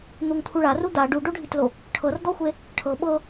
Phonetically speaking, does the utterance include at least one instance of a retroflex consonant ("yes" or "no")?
yes